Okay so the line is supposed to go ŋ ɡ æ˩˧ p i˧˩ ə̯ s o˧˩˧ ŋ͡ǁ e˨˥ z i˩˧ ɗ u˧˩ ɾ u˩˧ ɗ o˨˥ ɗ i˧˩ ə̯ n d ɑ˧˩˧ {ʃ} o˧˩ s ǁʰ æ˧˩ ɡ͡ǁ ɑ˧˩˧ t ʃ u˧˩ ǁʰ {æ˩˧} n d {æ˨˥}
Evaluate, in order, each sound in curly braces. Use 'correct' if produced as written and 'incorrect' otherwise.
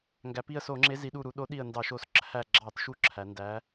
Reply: correct, correct, correct

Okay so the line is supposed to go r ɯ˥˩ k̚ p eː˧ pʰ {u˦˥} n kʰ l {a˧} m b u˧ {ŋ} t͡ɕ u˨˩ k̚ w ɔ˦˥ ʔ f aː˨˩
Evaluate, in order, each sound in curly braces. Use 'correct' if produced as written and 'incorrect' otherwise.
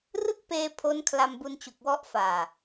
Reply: incorrect: o˦˥, correct, incorrect: n

